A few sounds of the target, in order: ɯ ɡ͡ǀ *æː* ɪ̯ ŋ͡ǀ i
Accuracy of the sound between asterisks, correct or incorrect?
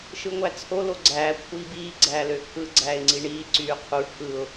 correct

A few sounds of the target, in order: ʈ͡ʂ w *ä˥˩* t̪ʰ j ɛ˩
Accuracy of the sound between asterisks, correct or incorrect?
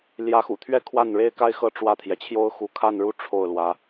correct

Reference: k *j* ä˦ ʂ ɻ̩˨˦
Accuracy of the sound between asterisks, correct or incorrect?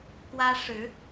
incorrect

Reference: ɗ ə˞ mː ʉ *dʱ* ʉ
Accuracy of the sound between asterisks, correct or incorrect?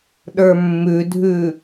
correct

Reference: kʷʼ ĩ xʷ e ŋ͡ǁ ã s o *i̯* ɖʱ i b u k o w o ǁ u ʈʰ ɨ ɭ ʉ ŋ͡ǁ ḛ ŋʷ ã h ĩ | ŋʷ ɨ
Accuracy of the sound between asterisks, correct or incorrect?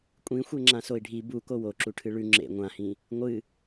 correct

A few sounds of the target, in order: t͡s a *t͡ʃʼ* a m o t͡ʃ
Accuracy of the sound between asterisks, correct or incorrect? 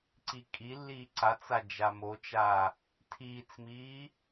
incorrect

